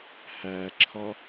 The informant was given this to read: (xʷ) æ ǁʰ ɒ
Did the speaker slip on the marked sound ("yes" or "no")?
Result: yes